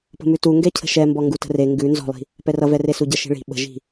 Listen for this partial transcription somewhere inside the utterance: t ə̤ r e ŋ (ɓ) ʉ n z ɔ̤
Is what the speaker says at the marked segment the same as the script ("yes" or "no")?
no